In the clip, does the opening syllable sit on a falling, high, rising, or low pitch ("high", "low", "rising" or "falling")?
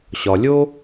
low